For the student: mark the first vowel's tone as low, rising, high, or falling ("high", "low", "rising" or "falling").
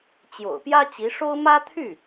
low